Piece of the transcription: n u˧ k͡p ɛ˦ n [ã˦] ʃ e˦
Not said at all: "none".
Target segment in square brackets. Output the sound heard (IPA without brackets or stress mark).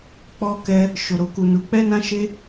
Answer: ã˦